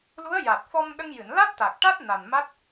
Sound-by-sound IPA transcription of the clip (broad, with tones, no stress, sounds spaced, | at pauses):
l u˧˥ ə̯ j a˨˩ t̚ f ɔ˧ m ɗ ə˧ ŋ j ɨ˨˩˨ n l a˦˥ t̚ t̪ a˨˩ k̚ ʈ a˦˥ t̚ n a˨˩ n m a˦˥ t̚